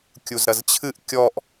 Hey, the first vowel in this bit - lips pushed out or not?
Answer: yes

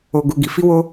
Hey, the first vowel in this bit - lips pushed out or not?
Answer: yes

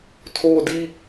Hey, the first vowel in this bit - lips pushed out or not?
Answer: yes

